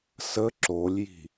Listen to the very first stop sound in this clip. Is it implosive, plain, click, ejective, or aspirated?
click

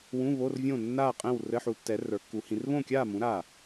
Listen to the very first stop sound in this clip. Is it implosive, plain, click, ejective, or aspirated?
ejective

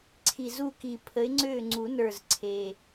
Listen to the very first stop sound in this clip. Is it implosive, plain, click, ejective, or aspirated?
click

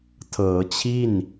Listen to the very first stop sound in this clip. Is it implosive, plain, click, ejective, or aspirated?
aspirated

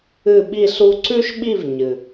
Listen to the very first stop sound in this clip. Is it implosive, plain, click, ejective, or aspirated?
implosive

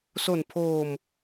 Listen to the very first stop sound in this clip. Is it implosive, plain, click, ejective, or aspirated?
aspirated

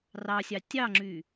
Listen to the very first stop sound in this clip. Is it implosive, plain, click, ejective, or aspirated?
plain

